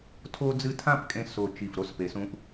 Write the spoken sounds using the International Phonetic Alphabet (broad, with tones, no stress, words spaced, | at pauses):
tʰo˥d͡zɨ˥˧ tʰã˥˧pkʼẽ˧ so˧˩t͡ʃi˧˩f ɾo˥spe˩˧sũ˧ʔ